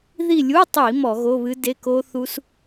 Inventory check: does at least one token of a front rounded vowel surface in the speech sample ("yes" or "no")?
no